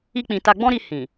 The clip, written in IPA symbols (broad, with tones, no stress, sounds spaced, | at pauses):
i˦ k͡p ĩ˧ t a˧ ɡ͡b ɔ̃˦ ɾ i˧ h ĩ˨